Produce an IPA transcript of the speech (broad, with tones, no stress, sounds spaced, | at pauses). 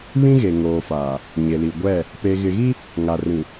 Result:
β ĩ˦ ɣ e˨ ŋ oː˨ f aː˨ | ɲ e˨ l i˨ ɡʷ ɛ˦˨ | p e˨ ɣ ɪ˨ ɣ i˦ | ŋ a˨ r ĩ˨